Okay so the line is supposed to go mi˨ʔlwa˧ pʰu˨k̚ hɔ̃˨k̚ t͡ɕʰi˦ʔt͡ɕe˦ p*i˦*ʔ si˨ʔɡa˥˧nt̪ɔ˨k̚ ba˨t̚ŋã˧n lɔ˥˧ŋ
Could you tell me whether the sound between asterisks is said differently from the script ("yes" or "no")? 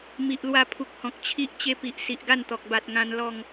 yes